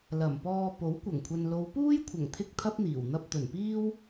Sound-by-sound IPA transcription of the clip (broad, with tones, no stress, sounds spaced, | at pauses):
l ɐ˨˩ m p ɔː˧ p o˨˥ w kʷ ɐ˨˩ ŋ kʷʰ ɐ˨ n l o˨˧ w p uː˥ j kʷʰ ɐ˨˩ ŋ t̪ʰ ɪ˥ k̚ t̪ʰ ɐ˥ p̚ n̪ iː˨˩ w n̪ ɐ˧ p̚ t̪ ɵ˨˩ n p iː˥ w